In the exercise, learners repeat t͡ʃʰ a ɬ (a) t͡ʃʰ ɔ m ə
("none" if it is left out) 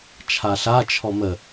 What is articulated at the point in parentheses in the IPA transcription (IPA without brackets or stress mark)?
a